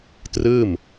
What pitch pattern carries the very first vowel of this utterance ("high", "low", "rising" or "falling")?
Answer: falling